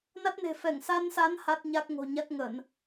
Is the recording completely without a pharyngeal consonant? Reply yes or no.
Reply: yes